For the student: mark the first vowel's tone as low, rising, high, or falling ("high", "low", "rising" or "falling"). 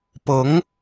rising